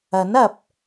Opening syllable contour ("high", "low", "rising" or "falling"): rising